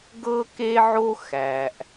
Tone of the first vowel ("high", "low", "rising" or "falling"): high